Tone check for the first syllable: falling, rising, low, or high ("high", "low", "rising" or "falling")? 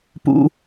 low